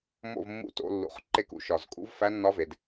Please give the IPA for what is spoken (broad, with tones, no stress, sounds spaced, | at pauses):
m o̰˦˨ v mː ṵ˧˥ t o̰˩˧ lː ṵ˨˩ χ ǃ e˦˨ k ṵ˨˩ ʃ ɒ˨˩ z kʼ ṵ˧˥ v f æ˧˥ nː ɒ˧˥ v e˩˧ d